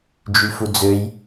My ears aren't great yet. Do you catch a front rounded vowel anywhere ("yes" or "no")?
yes